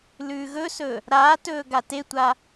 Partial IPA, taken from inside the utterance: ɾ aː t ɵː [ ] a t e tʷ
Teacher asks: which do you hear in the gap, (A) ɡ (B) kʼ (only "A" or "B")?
A